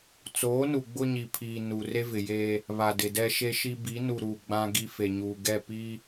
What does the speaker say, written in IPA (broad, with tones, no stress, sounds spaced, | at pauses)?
t͡s oː˨˦ n u˨ ɡ͡b ʊ˦ ɲ i˨ pʰ iː˨ n u˨ r e˦ v ɪ˨ j eː˦ | β a˨ d ɪ˨ d ɛ˦ ʃ e˦ ʃ i˦ b iː˨˦ n u˨ ɾ uː˨ ɡ͡b ã˦ ɡ i˦ f e˨ ɲ uː˨ ɡ ɛ˦˨ p iː˦